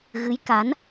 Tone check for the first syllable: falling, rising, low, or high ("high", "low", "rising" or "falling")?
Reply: rising